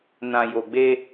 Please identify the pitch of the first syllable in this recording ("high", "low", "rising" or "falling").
low